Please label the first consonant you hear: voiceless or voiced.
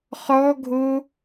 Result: voiceless